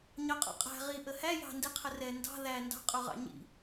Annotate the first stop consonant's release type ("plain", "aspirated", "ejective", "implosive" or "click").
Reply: ejective